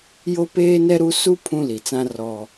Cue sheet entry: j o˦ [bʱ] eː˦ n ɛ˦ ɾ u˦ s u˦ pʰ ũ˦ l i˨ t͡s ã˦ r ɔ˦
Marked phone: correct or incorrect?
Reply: incorrect